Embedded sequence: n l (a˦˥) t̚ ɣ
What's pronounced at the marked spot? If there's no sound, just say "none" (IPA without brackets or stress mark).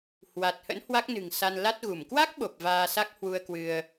a˦˥